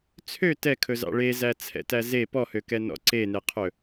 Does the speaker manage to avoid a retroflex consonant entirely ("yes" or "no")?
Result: no